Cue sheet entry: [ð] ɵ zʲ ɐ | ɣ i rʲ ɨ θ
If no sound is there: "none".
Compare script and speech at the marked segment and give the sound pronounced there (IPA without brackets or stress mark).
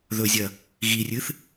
ð